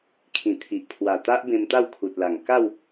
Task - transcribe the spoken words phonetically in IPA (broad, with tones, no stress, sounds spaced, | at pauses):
kʰ ĩ˨˩ t̪ʰ i˨ ʔ pʰ w a˨˩ t̪ a˦ ʔ b ẽ˧ m t̪ a˥˧ w kʰ u˨ t̚ l a˨˩ ŋ k a˥˧ w